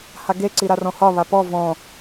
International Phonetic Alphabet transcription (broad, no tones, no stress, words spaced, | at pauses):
haɡe ǀiɾarɔ̃hɒ βapɔ vɔ̃